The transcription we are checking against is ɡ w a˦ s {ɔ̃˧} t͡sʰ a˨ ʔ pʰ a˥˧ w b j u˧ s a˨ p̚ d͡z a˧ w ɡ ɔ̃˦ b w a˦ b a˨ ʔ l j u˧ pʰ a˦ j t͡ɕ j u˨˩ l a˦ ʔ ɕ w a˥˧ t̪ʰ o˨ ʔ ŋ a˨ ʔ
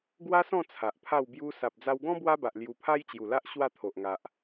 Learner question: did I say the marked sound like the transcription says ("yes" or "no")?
no